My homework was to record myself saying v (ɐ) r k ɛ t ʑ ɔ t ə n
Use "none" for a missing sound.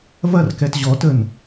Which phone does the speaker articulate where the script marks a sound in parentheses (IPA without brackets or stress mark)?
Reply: ɐ